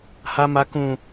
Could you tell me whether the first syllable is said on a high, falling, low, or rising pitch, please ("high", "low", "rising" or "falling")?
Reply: high